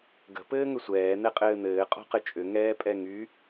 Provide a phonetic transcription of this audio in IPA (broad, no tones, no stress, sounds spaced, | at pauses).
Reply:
ɡ ə̤ p ɘː ŋ ʏ sʷ ɛː n̪ ɛ qʼ ɘː n̪ ɘː qʼ ɔ̤ q ɘ t͡ʃʼ ʏ ŋ ɛː pʼ ɛ ŋ y